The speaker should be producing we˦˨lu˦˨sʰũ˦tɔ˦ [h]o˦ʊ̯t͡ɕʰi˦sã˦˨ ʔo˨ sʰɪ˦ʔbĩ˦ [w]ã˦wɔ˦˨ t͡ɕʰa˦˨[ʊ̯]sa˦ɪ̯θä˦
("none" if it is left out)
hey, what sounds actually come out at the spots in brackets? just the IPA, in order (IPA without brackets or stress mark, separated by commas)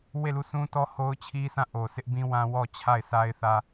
h, w, ɪ̯